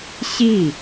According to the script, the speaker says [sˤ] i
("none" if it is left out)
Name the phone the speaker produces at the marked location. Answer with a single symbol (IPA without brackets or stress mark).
ɕ